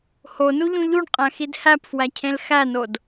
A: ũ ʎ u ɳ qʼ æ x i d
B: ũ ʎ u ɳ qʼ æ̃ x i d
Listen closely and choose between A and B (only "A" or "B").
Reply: B